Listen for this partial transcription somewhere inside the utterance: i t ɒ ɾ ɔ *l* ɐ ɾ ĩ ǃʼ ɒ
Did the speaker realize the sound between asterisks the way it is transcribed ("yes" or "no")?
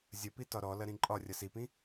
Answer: yes